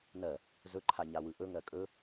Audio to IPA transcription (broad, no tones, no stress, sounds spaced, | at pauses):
n ɜ | z ɵ ǃʰ a ɲ a w ɯ ʔ ɵ ŋ ɜ kʼ ɵ